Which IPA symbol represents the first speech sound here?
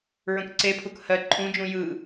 ɹ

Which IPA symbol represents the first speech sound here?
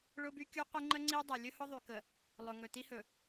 ɭ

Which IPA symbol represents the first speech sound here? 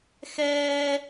x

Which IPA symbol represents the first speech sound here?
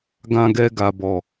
ɡ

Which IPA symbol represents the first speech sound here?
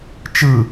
t͡ʃ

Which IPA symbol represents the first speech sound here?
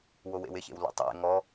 w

